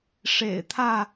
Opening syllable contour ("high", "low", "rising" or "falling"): low